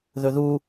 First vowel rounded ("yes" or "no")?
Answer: yes